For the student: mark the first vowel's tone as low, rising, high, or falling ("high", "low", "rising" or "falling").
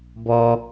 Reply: high